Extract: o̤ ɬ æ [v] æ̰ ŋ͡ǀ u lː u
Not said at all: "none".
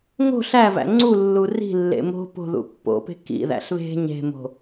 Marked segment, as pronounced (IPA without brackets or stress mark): v